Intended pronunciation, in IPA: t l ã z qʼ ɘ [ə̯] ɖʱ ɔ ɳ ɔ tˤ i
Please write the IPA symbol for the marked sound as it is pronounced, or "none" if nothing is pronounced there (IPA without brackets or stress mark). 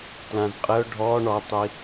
ʊ̯